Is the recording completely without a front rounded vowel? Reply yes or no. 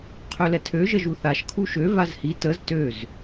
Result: no